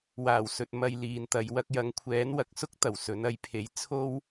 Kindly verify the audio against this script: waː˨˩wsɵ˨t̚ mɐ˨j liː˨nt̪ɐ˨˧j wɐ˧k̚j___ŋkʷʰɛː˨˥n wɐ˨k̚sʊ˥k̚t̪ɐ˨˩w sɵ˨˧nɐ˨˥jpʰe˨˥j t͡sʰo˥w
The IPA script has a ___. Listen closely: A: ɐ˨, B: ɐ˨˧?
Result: B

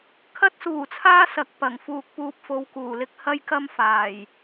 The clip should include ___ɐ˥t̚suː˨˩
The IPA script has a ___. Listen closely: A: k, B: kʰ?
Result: B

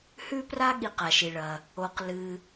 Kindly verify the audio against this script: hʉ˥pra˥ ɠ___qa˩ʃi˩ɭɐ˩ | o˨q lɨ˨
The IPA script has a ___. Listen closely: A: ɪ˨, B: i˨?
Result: B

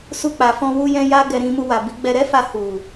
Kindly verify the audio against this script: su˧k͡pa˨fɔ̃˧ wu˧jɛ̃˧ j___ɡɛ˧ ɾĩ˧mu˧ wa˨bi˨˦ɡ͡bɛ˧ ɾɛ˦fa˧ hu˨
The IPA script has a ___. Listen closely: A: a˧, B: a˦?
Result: B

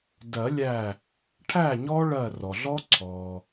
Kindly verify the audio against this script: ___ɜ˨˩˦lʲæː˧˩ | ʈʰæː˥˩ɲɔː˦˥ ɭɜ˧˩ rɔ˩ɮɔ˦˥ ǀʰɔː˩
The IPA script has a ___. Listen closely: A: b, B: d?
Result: B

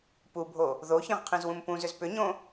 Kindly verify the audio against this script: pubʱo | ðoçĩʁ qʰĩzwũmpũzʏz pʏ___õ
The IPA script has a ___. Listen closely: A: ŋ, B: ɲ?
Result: B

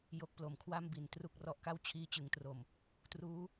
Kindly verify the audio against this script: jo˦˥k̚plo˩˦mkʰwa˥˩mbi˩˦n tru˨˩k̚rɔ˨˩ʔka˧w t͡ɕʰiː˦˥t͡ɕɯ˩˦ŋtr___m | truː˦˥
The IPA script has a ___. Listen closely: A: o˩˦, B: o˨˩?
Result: B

